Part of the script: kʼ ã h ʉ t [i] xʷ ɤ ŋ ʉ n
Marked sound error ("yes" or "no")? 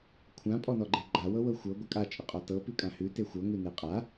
yes